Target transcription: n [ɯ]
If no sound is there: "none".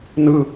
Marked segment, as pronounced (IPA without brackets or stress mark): ɯ